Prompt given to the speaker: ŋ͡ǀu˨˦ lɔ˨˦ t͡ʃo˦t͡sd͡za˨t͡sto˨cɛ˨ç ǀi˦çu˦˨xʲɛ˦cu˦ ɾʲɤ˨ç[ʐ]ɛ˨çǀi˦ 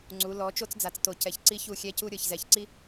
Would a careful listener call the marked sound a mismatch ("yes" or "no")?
yes